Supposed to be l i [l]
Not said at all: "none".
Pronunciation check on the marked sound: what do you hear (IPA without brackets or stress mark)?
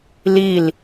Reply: l